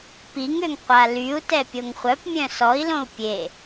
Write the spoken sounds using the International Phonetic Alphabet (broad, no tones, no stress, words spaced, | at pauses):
piŋøŋ qʷalyu̯tɛ pʲoŋχʷœpmʲœ̃ sɔi̯lõu̯ pʲe